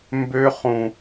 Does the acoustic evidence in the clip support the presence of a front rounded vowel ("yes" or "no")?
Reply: yes